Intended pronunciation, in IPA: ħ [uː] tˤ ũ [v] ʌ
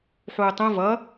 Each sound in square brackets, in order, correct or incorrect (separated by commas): correct, correct